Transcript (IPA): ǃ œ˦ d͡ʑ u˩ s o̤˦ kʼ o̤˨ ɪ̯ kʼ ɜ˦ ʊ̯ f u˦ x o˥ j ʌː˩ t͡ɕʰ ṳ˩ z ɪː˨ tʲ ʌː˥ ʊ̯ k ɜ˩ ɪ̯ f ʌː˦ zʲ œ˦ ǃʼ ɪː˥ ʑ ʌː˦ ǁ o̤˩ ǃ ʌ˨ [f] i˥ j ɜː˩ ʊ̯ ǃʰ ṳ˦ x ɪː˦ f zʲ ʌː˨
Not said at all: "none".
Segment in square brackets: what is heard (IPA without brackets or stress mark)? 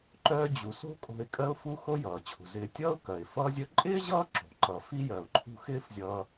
f